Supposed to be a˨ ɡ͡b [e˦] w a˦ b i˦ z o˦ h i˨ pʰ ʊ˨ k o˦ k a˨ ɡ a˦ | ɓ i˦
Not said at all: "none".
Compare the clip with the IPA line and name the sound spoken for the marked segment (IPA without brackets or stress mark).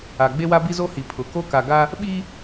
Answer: e˦